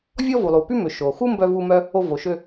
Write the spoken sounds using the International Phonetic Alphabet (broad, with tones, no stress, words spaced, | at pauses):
vʲɔ˥vu˩lˠu˩ py˥ mø˩ ʃo˩ xu˥mbœ˧vu˧mœ˧ | o˧vo˩ʃø˧